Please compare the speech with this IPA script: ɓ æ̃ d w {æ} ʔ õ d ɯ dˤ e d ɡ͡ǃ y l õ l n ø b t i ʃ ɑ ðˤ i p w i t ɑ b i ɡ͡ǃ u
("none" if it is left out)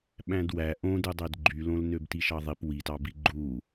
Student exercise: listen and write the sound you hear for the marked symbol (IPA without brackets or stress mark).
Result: æ